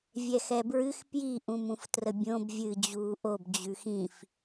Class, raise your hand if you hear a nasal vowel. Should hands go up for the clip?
yes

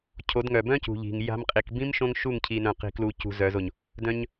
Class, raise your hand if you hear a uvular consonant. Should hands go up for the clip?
yes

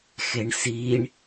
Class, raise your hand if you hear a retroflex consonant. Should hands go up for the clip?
yes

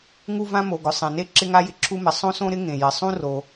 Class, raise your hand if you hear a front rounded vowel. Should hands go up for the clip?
no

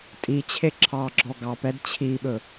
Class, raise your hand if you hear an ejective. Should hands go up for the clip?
yes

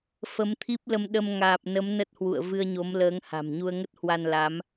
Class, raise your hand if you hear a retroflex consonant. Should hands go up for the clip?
no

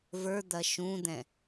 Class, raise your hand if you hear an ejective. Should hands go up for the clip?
no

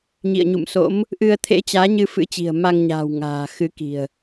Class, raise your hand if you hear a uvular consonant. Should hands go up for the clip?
no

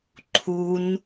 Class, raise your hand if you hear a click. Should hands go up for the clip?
yes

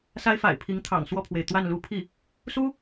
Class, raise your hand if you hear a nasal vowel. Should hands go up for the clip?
no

